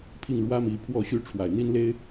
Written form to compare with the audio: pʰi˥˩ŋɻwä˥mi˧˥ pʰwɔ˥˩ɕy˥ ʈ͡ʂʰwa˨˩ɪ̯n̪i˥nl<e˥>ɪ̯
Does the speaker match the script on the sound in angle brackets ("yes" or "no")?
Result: yes